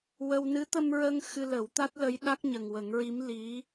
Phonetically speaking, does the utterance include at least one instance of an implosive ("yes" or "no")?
yes